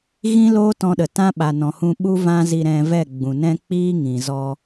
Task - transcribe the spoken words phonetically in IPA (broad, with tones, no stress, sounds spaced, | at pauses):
ɣ ĩ˦ l oː˦ t ɔ̃˧ ɗ ə˨ t ã˦ ɓ a˨ n ɔ̃˨ h ũ˧ ɓ u˦ v ã˦ z i˧ ɾ ɛ̃˧ v ɛ˦˨ ɡ͡b ũ˨ n ɛ̃˦ k͡p iː˦ ŋ ĩ˨ z ɔ˧